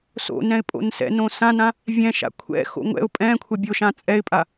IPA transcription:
so̰ nɛ̃ɪ̯pʼo̰nsɛ̰nõ sãnã | vʲɛ̃ʃa̰ kʷʰɛ̰xo̰ ŋʷɛ̰ʊ̯ pʼɛ̃ kʷʰɛbʲoʃã t͡sʼɛɪ̯pʼa

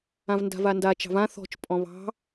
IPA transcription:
ãvnda̤vanda t͡ʃɑ̤vã θɔ̤t͡ʃ pʼɔ̃βɑ̤

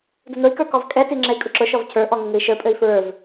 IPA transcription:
dʊnʊi̯kə˞ kɔvkʼɛti ŋ͡ǁɛi̯kʼʊǁʊʃɔv cʰə˞ʔɔ ŋəŋɘi̯ʃə˞pʼɘi̯ fɹə˞v

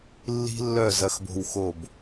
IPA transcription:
lːi̤˦lːœ˦˨ zɐ˦xbo̤˦wxo˦˨b

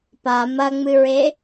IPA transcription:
pa mɐŋ͡mɨɹe

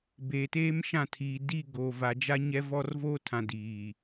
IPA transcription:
beː˨teː˦mʃã˦˨tʰiː˨ di˦˨ ɡoː˨va˨d͡ʒa˦ ɲɛ˦vɔ˦r voː˦tʰã˨ diː˨

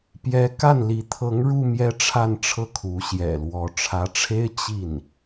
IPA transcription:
pjɛ˧˥ ka˥˩nli˧˥ t̪ʰɤ˧˥ŋɻu˧ mjɛ˥ʈ͡ʂʰa˥˧nʈ͡ʂʰɤ˥˩ kʰu˧˥ɕjɛ̰˨˩lwɔ˧˥ ʈ͡ʂʰä˧˥ʈ͡ʂʰe˥ɪ̯ t͡ɕi˥˩n

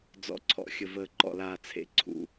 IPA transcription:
d͡zɔ̰˨˥ǀʰɔ̰˨˥xʲə˨vəː˨ ǃɔ̰˨laː˨t͡sʰḛ˨˥ ǀʰṵ˨

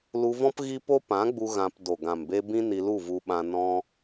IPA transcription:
lu˧vɔ̃˦p ɣi˦po˦ pã˨˦ɡ͡bu˧ ɣã˧p do˨ɡã˨mbe˧ bĩ˦ni˧lu˦˨vu˧ ɓã˧ nɔ̃˧

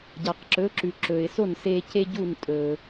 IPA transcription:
ɟa˩qǁɵ˩˥ ǁʉ˩ ǁɵ˩ɪ̯so˥˩nse˧ ce˥ɟu˥˩ntʼɵ˩

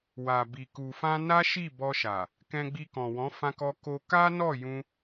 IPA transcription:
wa˨bi˨ ku˨fã˧ na˦ʃi˦˨ bɔ˧ʃa˨ | kɛ̃˧ɡ͡bi˧kɔ̃˨wɔ̃˨˦ fã˧kɔ˧ ko˧ ka˦nɔ˦˨jũ˧

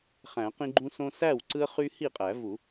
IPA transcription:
χæ̃˨˩˦qĩ˦ ɡ͡ǃũ˦sõ˦ sæ˥˩wǀɯ˦ə̯χy˦ hi˥˩qʼæ˨˩˦vu˨˩˦

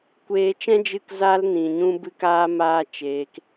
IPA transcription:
kʷeː˧t͡ʃɛ̃˦ d͡ʒɨ˧kza˧lnĩ˨ ɲũ˦bɨ˦k aː˦maː˦t͡ʃeː˧k

